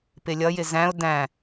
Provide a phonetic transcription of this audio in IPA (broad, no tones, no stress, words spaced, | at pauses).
pɪlʲʌjɪ zæ̃ʊ̯ dæ̃